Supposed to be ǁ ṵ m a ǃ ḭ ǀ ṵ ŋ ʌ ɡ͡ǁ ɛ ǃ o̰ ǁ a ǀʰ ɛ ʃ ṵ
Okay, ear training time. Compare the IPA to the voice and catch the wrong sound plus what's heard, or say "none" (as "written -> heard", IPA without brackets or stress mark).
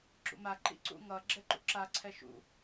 o̰ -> ṵ